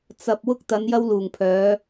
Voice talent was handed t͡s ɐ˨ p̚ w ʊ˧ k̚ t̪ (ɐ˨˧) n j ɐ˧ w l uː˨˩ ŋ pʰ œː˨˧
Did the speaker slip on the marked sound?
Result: no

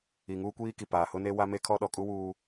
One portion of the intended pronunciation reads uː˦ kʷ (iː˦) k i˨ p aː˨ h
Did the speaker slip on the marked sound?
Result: no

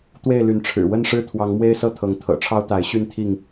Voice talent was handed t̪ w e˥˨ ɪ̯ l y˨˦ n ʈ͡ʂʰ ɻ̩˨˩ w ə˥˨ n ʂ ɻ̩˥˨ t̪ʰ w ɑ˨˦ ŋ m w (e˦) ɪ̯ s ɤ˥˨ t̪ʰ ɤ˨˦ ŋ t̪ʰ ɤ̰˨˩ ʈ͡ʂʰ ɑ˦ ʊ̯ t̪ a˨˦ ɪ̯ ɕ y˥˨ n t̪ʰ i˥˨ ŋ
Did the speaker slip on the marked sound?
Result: no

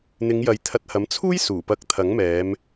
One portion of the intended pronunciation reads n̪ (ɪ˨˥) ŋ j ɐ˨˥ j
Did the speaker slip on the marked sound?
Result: yes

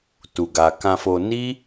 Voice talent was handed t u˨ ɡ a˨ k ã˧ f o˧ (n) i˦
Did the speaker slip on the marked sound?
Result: no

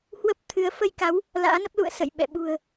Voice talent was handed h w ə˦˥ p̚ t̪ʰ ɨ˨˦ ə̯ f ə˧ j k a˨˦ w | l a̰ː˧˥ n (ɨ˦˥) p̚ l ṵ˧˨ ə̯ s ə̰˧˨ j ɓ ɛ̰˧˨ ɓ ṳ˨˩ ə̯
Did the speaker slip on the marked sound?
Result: yes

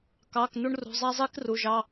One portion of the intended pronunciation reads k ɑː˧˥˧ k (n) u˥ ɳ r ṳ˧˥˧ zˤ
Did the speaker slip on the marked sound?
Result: no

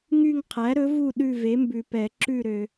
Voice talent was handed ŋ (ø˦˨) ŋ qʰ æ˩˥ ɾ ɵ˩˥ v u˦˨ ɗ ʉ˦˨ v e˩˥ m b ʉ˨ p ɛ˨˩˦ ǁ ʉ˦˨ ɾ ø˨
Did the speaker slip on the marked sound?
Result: yes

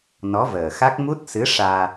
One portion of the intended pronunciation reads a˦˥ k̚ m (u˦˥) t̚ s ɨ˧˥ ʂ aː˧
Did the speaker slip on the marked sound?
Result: no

